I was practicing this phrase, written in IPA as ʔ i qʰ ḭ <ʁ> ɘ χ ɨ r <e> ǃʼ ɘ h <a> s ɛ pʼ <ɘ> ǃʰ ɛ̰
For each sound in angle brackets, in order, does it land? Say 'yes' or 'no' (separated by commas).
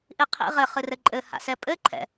yes, no, no, yes